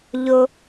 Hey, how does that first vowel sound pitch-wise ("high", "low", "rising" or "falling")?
low